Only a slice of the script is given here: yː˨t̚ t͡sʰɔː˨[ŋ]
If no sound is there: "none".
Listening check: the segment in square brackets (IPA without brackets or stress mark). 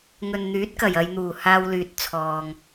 ŋ